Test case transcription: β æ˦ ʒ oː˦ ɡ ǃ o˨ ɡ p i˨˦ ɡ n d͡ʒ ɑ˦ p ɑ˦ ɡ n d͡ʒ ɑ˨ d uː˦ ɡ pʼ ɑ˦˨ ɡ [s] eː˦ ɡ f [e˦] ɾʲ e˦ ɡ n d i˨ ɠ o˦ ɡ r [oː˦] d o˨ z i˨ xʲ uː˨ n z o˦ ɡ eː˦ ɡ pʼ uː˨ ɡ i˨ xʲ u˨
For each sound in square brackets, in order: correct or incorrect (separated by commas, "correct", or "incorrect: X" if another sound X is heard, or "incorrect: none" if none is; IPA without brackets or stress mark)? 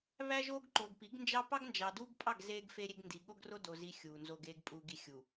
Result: incorrect: z, correct, incorrect: o˦